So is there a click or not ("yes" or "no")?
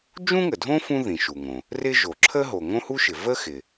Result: yes